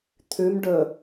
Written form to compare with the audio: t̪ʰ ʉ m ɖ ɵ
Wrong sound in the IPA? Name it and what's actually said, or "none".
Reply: none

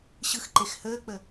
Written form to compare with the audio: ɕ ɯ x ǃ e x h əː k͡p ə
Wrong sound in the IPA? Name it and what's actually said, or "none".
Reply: none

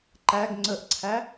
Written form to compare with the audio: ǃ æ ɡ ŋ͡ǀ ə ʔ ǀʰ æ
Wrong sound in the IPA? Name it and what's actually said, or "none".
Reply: none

